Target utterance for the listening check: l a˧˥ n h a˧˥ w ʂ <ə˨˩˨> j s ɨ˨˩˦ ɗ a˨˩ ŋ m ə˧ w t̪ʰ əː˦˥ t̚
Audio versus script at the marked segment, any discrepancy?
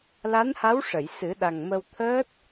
no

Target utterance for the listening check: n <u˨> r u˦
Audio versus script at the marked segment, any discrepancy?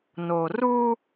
yes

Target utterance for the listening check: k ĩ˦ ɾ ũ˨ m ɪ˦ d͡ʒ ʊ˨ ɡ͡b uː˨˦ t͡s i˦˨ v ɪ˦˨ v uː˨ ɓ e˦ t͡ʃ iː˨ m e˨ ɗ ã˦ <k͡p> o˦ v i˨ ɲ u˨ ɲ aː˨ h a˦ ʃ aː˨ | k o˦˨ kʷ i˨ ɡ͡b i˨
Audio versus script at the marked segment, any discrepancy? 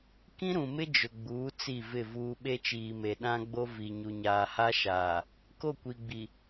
yes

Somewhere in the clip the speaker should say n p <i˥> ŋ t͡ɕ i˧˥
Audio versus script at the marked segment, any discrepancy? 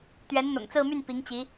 yes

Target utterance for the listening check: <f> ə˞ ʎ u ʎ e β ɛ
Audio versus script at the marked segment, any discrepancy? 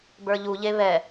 yes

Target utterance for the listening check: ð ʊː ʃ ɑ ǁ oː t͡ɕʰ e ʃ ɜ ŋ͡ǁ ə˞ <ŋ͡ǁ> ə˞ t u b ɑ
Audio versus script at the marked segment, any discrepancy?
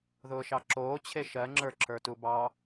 yes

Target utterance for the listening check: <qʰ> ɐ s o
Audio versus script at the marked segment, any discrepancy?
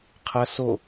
no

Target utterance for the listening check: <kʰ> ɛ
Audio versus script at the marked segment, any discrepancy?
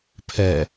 yes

